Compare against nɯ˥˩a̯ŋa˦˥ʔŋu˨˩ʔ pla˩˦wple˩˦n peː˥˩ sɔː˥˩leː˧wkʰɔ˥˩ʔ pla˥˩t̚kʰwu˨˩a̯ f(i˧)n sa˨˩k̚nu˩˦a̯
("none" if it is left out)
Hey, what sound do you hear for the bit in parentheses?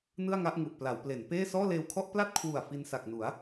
i˧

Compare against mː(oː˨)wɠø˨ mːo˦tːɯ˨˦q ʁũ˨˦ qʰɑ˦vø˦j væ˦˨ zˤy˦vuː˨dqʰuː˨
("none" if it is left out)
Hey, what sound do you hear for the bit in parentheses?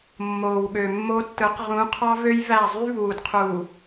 oː˨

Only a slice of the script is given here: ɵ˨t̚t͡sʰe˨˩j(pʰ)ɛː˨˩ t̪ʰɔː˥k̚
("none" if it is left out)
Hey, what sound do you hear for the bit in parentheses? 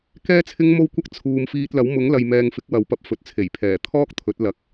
pʰ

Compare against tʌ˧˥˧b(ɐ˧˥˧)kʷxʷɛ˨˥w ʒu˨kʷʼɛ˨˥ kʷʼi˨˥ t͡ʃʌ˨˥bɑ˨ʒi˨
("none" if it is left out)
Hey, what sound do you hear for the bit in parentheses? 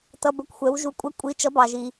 ə˧˥˧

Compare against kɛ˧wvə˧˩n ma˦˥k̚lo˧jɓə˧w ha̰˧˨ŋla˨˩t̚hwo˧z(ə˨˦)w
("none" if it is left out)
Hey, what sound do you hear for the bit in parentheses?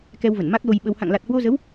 ə˨˦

